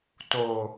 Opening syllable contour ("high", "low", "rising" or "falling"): low